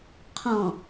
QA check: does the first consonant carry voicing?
no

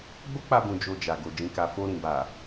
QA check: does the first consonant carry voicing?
yes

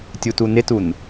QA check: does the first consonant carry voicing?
no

